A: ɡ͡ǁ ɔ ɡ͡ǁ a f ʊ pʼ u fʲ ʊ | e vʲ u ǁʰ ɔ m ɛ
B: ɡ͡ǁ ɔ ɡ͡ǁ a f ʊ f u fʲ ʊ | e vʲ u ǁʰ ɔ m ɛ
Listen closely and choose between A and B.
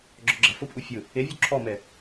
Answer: A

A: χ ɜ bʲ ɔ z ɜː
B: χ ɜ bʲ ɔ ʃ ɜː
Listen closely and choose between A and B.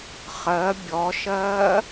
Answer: B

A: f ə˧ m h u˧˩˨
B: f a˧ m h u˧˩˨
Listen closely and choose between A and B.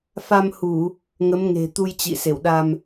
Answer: B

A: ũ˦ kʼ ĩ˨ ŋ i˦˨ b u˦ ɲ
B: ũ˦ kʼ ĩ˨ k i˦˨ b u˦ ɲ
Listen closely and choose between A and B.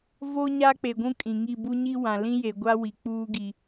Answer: A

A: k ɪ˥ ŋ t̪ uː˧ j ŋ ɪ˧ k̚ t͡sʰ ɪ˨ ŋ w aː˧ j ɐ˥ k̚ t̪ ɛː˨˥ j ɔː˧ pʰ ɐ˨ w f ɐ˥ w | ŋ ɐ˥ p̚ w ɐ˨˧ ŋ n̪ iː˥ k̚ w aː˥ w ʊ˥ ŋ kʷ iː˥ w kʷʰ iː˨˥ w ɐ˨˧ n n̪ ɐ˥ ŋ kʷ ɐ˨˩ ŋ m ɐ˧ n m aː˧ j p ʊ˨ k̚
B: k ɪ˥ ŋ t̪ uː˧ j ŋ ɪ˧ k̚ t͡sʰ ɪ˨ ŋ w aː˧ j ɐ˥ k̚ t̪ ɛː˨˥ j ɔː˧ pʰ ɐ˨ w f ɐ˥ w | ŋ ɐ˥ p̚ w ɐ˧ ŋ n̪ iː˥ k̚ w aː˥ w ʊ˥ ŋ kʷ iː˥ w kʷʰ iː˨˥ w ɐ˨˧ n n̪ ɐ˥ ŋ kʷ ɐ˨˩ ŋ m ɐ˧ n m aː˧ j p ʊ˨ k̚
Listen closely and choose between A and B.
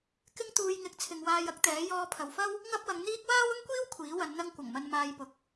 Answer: A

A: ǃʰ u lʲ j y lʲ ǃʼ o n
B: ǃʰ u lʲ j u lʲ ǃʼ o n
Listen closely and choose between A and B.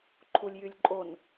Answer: A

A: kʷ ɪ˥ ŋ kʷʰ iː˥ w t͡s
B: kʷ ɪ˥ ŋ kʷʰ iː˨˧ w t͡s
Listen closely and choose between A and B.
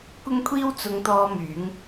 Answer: A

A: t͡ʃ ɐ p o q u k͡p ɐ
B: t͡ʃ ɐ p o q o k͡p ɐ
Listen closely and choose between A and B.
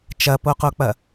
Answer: B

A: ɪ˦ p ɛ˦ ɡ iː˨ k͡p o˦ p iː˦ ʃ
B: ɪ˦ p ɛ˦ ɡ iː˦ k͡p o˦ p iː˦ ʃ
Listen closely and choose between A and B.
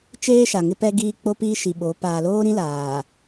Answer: B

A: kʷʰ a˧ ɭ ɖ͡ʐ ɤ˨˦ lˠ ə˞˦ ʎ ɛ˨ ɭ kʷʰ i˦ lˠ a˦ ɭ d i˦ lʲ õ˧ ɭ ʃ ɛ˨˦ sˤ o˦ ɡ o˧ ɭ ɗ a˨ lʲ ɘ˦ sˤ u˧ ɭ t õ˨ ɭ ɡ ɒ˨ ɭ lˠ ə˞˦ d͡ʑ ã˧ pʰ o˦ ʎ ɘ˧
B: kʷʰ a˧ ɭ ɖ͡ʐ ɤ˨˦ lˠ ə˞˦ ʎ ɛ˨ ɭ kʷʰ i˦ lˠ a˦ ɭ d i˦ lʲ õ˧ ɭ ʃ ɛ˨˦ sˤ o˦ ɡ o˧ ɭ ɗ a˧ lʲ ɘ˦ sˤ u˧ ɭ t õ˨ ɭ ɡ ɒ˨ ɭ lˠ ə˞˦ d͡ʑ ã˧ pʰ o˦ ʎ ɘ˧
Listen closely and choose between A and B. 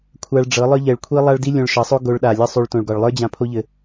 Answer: A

